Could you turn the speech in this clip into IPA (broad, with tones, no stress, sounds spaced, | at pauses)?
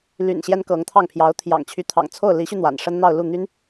l y̰˨˩ n ɕ j ɛ˥ n k ɤ˧˥ ŋ t̪ʰ ɑ˥˩ ŋ pʰ j ɑ˧˥ ʊ̯ t̪ʰ j ɑ̰˨˩ ŋ t͡ɕʰ y˧˥ t̪ʰ ɑ̰˨˩ ŋ t͡sʰ o˥˩ ʊ̯ l i˧˥ ɕ y˧ n̪ w a̰˨˩ n ʂ ə˥ n n̪ ɑ˥˧ ʊ̯ l u˥˩ n̪ y˥ n